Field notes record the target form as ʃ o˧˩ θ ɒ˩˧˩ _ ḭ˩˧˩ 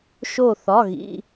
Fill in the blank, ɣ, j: ɣ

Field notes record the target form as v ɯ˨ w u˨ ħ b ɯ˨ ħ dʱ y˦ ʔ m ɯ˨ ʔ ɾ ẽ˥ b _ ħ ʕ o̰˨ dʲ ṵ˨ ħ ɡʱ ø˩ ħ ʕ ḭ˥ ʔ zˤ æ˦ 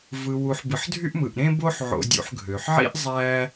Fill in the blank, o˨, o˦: o˦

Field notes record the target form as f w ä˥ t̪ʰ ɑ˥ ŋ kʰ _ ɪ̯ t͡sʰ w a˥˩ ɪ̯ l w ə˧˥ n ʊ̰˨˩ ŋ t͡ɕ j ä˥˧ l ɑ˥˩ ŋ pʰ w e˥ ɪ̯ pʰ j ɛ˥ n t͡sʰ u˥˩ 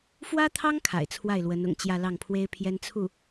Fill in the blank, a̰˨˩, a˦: a̰˨˩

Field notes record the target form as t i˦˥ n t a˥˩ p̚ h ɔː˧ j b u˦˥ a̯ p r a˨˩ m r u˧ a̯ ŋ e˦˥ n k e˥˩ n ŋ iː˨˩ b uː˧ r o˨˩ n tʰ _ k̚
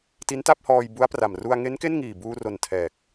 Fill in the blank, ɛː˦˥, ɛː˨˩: ɛː˨˩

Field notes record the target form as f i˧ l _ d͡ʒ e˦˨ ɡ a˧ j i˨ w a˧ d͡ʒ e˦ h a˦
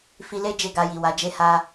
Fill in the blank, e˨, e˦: e˦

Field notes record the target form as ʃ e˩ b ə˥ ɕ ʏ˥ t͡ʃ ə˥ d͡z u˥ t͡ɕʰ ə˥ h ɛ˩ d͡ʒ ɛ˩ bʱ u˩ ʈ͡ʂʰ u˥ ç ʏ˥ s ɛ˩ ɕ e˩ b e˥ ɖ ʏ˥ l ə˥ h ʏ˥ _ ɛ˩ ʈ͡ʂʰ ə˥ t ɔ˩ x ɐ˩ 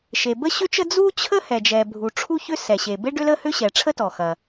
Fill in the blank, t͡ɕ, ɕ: ɕ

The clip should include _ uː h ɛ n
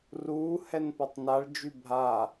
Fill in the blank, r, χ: r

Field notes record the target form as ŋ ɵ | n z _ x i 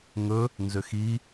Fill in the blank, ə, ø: ø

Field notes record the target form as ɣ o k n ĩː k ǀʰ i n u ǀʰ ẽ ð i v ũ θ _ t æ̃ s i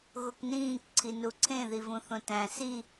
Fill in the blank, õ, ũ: õ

